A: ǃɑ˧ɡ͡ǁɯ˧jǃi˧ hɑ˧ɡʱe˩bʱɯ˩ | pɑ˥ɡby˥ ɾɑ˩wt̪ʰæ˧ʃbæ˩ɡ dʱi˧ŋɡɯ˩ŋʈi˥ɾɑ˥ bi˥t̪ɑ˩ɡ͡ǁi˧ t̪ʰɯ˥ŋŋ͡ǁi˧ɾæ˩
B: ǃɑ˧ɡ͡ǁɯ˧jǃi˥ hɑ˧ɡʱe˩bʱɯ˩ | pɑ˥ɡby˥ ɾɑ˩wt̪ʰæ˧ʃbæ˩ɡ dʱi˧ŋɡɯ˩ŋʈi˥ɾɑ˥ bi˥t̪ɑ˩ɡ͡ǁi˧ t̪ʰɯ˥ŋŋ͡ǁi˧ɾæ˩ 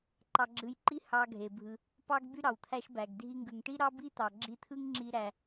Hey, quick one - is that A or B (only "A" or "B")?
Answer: B